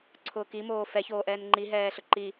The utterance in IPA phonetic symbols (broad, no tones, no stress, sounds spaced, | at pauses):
ǀʰ ʊː k i m oː f ɛ ç oː ʔ ɛː n ŋ͡ǃ i ɦ ɛː ɬ ʊ ǃ i